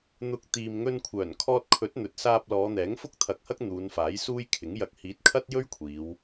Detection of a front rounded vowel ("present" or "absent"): present